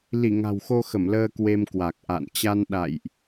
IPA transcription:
li˧˩ ŋa̤˨˩wxo˧xə˧˩m ləː˧ kwe˧mkwa˨˩k̚ʔa̰˧˨n t͡ɕa˧nɗa̰˧˨jʔ

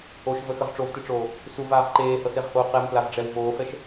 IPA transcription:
oʃvəxəʁ ʈ͡ʂovteʈ͡ʂoː | suvaːʁ ǃeːhɤseʁhoː qɛmplavɖ͡ʐɛw voːfɛʃ

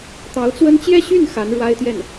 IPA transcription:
t̪ɑ˧˥ʊ̯t͡swə˥n t͡ɕjɛ˥˧ɕy˥˩n xa˧˥nɻwa˥ɪ̯t̪jɛ˥˩n

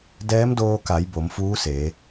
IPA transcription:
dɛː˧˥mdoː˧ka˩˧j bo˩˧mfuː˧˥seː˩˧

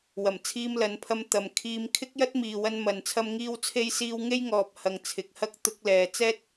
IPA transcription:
wɐ˨˩mt͡sʰiː˧mlɐ˨˧npʰɐ˧m t̪ɐ˨mkʰiː˧m kʰɪ˥k̚jɐ˥t̚miː˨wɐ˧n mɐ˨n t͡sʰɐ˥mŋiː˥wt͡sʰe˥j siː˧w ŋe˥j ŋɔː˨p̚ hɐ˨ŋt͡sʰɪ˨k̚hɐ˥k̚ t̪ʊ˧k̚lɛː˨ t͡sɛː˥t̚

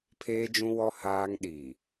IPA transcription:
pʰeː˦d͡ʒũ˦wɔ˦ haː˦ŋ ɗi˨

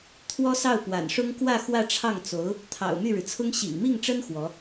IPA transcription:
t̪ʰwɔ˥sɑ˥˩ʊ̯ pwa̰˨˩nʂʊ˥ŋ kwä˥˧ xwä˥˧ʈ͡ʂʰɑ˥˩ŋt͡so˧˥ʊ̯ | t̪ʰɑ̰˨˩ʊ̯ my˥˩ɻɻ̩˩t͡sʰʊ˥ŋ ɕḭ˨˩ŋmi˥˩ŋʈ͡ʂə˥n xwɔ˧˥

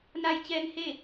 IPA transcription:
na˧jt͡ɕɛː˧ŋhe˥˨

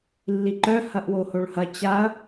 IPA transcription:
lːiǃœ hɐʔwohoɭhɐ t͡ɕaɐ̯

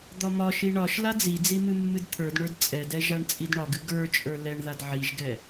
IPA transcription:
d̪ɒmɒʃi ɳɒʃ lad͡zid͡zi mɨmːɨdt̪ʰə˞dɳə˞d t͡sʼɛdɛ ʒaɳt͡sʼidɳɒɡɨ ɡə˞t͡ʃʼə˞ lɛɳðad ʕiʒɡɛ

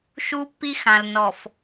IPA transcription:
ʃu˦pːi˦xã˨l nɔ˨f

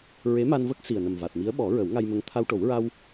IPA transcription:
ɹe˧˥ma˧nvə˦˥k̚ si˨˩ə̯nə˨˩m va˨˩t̚mi˧˥ə̯ ɓɔ˨˩˦ ɹə˨˩˦wŋa˧jmə˧˥ŋ t̪ʰa˧wʈo˨˩˦w ɹa˧w

